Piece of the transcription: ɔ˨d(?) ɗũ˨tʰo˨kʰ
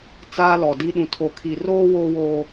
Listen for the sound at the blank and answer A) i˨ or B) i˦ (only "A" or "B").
B